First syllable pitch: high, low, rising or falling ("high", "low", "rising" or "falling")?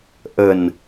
low